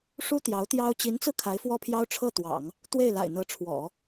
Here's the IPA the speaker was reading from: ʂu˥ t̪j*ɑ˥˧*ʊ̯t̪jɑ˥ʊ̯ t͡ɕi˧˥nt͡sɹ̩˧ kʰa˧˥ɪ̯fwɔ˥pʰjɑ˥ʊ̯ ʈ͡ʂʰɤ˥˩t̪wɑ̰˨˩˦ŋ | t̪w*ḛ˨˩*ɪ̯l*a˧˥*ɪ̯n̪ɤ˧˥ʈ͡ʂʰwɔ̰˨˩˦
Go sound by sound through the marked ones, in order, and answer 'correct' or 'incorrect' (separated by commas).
incorrect, incorrect, incorrect